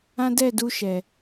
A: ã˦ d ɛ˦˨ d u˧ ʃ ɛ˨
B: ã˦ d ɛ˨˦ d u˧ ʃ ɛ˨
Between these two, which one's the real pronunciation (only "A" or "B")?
A